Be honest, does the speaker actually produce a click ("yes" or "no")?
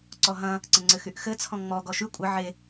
yes